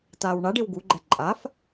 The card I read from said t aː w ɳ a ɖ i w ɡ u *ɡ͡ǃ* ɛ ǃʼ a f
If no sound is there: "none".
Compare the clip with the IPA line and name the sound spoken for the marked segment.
ɡ͡ǃ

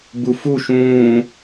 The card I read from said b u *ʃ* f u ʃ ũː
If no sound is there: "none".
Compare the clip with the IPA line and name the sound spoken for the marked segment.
none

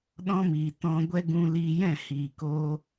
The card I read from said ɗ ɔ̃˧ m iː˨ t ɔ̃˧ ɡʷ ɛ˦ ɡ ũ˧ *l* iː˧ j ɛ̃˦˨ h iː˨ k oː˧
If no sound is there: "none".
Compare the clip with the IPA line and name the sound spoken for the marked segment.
l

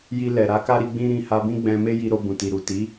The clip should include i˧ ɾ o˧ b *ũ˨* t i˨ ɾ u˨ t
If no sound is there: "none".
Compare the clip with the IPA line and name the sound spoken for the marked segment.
ũ˨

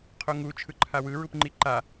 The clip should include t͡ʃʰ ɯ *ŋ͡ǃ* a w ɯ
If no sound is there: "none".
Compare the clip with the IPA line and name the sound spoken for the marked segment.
ǃʰ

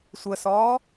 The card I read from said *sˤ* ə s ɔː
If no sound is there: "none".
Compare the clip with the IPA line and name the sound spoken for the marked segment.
sʷ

